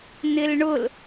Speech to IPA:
n̪ ɪ l ɳ ʊ l

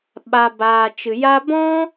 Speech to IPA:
ɓ a˨ b aː˨ t͡ʃ ɨ˨ j a˦ b ɔ̃˦

